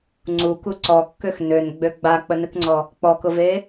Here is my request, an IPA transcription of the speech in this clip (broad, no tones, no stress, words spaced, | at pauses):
ŋ͡ǀuku ǀɔkːøx nønɡ͡bø ɡ͡bak͡pənɨkŋ͡ǀɔ | k͡pɔkʊve